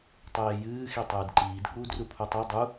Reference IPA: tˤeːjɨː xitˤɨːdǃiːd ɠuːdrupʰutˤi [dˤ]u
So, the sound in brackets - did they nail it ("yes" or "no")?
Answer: yes